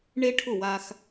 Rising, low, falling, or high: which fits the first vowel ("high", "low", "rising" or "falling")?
high